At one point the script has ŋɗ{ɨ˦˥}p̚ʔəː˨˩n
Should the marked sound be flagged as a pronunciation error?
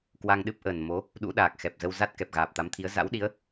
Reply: no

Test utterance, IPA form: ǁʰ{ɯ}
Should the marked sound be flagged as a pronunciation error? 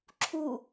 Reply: yes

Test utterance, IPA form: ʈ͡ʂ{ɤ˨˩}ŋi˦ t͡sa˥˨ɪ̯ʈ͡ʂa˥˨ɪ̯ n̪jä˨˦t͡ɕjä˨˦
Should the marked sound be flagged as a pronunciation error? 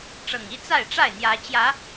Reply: no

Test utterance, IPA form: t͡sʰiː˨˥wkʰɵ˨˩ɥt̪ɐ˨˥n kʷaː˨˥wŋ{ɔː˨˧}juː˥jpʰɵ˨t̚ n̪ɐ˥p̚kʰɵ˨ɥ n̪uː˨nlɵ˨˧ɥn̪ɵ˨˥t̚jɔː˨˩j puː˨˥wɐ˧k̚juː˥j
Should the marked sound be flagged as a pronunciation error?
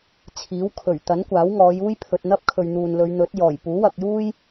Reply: no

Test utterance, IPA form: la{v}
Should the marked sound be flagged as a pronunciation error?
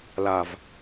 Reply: no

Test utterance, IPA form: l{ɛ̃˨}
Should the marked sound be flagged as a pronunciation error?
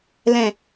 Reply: no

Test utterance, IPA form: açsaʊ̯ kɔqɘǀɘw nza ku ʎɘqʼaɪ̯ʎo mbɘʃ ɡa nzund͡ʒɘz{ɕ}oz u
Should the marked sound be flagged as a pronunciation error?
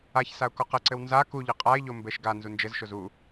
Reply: yes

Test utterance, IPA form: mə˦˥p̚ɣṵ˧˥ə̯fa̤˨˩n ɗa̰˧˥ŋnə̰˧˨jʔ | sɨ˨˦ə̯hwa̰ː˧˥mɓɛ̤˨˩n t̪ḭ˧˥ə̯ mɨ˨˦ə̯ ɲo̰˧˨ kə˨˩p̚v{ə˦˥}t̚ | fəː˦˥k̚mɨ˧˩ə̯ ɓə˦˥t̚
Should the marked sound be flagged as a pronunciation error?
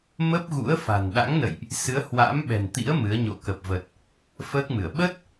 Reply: yes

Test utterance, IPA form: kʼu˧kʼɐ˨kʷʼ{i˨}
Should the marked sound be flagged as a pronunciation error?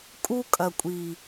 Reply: no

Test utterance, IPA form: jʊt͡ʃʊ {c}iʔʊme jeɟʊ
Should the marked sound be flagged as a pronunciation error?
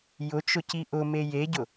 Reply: no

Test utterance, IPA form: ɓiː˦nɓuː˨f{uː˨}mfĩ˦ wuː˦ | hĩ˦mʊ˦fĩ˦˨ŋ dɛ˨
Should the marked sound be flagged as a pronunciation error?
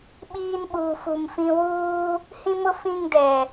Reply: yes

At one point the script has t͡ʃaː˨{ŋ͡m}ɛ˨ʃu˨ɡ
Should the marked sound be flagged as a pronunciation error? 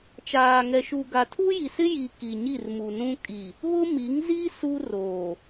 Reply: yes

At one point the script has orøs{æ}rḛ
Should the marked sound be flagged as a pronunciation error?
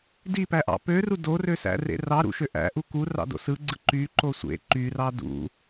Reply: yes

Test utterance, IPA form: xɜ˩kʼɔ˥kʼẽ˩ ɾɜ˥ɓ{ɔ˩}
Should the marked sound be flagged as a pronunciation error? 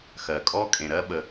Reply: yes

